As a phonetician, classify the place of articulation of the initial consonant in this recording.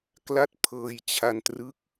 velar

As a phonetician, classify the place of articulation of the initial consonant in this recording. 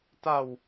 alveolar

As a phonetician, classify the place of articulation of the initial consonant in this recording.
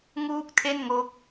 velar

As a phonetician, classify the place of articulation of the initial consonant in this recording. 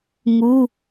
velar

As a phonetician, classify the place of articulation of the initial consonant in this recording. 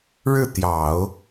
retroflex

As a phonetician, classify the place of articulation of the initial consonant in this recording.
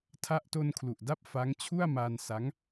alveolar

